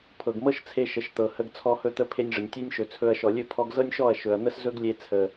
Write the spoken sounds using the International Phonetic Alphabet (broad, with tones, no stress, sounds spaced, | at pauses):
pʰ ɤ˨ ɡ m ɤ˦ ʃ t͡sʰ e˧ ʃ ə˨ ʃ t̪ ɤ˨ h ə˧ ɡ t͡sʰ ɔ˧ h ɵ˧ t̪ ə˧ pʰ e˧ nʲ ʐ ə˨ nʲ tʲ e˦ nʲ ʃ ɵ˨ t͡sʰ ɵ˧ ɐ̯ ʃ ɔ˨ lʲ ɵ˦˨ pʰ ɔ˧ ɡ z ɤ˦ nʲ ʃ ɔ˦˨ ɐ̯ ʃ ɵ˨ ɐ̯ n̪ ə˦ s z ɵ˦ ɡ lʲ e˧ t͡sʰ ə˨